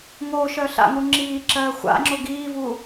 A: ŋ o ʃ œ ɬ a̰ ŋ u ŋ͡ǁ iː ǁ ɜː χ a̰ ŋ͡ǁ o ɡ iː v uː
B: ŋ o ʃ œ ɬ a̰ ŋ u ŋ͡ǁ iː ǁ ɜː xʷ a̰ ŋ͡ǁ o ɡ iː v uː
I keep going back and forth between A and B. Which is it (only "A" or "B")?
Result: B